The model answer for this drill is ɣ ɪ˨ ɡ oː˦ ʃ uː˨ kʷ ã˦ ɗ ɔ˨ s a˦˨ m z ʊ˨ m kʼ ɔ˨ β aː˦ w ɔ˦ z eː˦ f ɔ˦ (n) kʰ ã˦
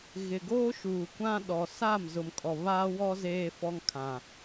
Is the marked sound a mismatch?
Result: yes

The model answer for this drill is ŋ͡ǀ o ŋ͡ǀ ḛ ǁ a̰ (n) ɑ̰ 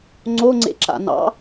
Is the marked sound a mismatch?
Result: no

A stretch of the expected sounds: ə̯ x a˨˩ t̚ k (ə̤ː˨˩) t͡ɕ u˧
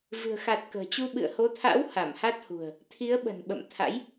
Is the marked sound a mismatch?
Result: no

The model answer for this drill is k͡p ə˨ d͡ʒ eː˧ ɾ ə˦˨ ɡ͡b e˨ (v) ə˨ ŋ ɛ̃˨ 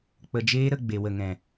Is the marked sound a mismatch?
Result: yes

